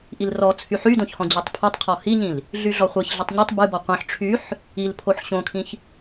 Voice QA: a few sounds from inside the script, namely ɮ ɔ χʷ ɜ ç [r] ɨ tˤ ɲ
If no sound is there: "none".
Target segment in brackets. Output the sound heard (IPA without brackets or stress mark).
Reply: ɮ